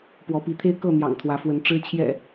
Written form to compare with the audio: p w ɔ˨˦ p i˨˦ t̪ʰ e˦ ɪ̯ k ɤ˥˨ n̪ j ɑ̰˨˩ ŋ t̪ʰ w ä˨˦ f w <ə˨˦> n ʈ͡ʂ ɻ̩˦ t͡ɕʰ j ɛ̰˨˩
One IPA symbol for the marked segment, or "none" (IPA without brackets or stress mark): ə˨˦